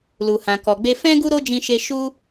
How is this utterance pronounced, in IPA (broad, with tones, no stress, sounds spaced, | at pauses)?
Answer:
l u˨ h ã˨ k ɔ˨ ɡ͡b e˧ f ɛ̃˦ ɡ u˦ ɾ o˦ d͡ʒ ĩ˧ ʃ e˧ ʃ u˦